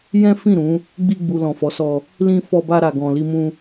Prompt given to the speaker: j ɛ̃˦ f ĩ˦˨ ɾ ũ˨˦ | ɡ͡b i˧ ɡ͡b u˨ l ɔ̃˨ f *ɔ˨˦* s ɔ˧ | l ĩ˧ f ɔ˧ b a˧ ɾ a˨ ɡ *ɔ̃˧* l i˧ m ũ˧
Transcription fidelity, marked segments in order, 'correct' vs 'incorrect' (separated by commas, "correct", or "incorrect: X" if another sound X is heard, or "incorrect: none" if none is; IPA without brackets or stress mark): correct, incorrect: ɔ̃˨